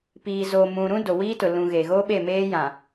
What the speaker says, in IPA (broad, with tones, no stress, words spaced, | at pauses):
piː˨zo˨mũ˨ɾũ˦ do˨wiː˦tʊ˨ lũ˨ ɣe˨ɣo˦ ɓe˦˨meː˦jã˨